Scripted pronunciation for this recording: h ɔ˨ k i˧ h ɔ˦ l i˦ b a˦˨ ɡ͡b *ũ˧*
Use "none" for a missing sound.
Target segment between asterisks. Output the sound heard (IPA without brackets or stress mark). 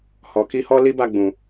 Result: ũ˨